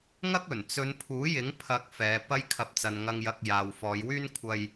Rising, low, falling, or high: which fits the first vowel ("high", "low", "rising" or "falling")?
high